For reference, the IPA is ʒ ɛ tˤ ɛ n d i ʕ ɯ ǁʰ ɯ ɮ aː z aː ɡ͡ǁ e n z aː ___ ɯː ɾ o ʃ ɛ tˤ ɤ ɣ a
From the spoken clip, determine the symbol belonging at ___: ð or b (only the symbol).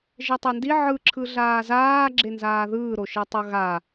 ð